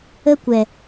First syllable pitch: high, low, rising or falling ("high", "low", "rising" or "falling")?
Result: high